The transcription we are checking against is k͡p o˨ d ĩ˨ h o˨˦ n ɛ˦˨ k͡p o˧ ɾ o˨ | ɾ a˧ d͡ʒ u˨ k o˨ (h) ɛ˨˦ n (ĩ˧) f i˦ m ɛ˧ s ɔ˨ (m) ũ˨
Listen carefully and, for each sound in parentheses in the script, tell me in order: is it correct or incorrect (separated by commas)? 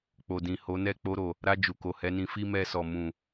correct, correct, correct